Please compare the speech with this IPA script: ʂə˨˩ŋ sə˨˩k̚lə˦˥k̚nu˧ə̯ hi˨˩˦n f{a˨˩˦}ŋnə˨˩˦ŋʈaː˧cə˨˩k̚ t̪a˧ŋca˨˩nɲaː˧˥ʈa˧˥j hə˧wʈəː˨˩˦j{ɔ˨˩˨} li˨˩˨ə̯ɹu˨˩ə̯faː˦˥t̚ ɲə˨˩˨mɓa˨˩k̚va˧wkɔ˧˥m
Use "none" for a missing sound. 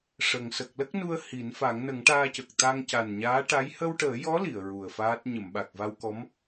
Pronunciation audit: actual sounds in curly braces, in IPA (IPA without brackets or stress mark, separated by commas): a˨˩˦, ɔ˧˥